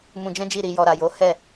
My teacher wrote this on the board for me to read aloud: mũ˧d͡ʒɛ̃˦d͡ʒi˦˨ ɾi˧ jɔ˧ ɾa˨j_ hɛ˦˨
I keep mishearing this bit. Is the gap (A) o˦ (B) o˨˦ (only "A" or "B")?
B